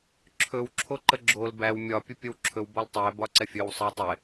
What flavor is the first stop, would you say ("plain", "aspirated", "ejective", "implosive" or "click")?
click